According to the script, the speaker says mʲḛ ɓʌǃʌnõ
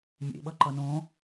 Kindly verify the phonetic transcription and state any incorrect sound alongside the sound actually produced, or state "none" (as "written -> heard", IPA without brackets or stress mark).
none